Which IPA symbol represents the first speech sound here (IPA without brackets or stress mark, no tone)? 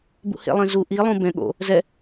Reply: b